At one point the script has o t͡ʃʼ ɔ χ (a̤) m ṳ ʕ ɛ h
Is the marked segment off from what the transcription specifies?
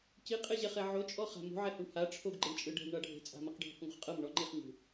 no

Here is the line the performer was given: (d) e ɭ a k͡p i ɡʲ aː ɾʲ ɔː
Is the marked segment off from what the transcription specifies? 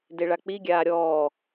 no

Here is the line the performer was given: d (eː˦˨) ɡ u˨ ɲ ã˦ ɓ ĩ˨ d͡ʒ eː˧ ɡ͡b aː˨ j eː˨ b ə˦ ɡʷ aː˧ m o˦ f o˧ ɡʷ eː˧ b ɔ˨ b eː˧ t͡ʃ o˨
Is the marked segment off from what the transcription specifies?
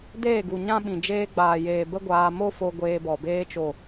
no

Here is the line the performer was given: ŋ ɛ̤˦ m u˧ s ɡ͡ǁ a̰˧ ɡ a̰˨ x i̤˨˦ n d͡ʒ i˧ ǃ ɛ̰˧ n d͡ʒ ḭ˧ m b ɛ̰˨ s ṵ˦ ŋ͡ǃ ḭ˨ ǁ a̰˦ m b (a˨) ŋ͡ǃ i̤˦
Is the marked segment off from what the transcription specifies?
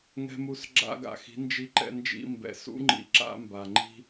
no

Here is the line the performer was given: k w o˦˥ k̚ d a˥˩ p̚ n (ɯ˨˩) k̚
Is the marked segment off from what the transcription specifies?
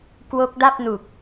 yes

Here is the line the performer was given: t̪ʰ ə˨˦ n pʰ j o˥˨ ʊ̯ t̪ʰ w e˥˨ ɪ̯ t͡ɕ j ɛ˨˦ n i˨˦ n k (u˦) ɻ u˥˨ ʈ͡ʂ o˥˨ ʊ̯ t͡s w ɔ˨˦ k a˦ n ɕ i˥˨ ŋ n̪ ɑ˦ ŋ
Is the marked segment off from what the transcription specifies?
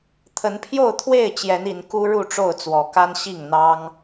no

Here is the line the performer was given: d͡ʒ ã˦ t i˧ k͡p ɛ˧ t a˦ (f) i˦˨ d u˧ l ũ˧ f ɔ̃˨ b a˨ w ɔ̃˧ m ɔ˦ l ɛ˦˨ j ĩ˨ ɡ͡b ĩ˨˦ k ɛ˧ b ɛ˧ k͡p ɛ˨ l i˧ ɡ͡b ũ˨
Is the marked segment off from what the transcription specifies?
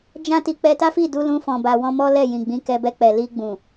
no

